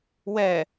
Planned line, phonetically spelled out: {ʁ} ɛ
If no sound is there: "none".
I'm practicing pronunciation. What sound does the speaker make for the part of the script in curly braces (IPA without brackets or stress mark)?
w